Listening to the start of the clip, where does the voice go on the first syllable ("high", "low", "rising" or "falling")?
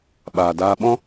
low